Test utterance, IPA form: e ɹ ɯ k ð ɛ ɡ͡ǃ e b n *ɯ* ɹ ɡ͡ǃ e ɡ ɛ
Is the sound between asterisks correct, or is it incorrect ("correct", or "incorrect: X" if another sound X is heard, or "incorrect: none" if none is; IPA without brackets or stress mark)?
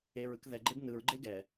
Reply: correct